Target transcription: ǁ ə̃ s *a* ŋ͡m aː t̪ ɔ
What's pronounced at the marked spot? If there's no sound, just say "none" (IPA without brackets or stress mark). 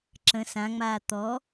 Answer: ã